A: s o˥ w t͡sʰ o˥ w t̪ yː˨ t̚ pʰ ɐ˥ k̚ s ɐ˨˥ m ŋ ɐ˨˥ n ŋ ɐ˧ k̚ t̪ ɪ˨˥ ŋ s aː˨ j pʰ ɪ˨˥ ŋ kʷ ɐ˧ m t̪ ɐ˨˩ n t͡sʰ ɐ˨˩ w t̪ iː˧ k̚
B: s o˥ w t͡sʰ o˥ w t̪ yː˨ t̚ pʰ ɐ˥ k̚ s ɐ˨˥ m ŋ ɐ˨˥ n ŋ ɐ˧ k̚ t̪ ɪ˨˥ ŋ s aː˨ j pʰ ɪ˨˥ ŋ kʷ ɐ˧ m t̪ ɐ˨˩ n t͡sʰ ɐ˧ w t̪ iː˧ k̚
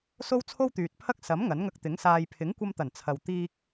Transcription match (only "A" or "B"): B